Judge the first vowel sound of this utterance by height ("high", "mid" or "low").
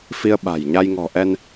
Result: high